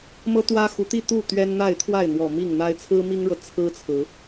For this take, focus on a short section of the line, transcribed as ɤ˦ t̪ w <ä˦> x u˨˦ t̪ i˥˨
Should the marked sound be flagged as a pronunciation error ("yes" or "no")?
no